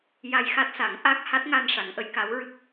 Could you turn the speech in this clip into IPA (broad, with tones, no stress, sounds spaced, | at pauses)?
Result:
j a˧ j x a˦˥ t̚ s a˨˩˦ ŋ ʔ a˦˥ k̚ h a˦˥ t̚ ŋ a˧ n ʂ a˨˩˦ ŋ ʔ ə˧˥ j k a˧˥ w ɹ ɨ˦˥ k̚